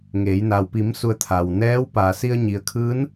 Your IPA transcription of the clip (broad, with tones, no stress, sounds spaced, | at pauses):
ŋ eː˩˧ j n a˩ w p i˩˧ m s u˩˧ ə̯ t̪ʰ a˩ w n ɛː˧˥ w p a˩ s i˧ ə̯ ɲ i˩ ə̯ kʰ ɯː˧˥ n